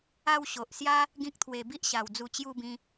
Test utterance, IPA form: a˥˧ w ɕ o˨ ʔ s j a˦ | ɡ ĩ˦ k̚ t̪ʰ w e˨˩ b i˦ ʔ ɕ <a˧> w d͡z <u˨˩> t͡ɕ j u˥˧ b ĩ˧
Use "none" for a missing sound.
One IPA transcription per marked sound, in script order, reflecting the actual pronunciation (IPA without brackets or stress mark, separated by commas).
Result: a˨˩, u˧